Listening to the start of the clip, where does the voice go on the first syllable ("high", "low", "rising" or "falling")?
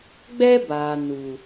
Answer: high